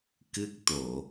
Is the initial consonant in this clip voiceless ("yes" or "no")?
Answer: yes